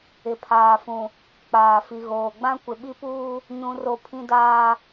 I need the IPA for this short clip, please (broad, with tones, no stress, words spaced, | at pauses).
ɪ˨pʰaː˨fũ˨ | k͡paː˨fi˨ɣoː˨ ɡ͡bã˦kʷɪ˨ɓi˦puː˦ | ɲũ˦ro˦ pʰĩ˦daː˦